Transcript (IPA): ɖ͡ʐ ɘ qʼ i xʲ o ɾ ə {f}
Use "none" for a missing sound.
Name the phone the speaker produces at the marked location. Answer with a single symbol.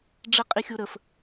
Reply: f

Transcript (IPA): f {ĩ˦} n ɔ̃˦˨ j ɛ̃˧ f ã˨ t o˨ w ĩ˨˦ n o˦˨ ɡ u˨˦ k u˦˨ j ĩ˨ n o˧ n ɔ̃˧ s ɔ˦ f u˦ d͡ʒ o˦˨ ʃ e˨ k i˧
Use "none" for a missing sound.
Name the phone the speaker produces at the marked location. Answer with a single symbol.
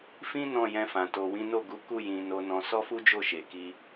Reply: ĩ˦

